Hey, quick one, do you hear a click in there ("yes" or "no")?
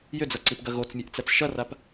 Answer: yes